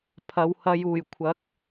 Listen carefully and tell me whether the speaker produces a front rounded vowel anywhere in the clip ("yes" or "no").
no